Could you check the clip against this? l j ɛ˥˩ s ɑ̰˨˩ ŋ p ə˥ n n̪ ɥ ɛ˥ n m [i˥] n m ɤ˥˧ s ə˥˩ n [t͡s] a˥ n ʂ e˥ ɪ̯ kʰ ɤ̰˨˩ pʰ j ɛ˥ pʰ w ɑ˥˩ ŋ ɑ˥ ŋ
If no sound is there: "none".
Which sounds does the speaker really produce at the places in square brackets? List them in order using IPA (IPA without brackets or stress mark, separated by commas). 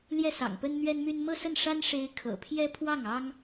y˥, ʂ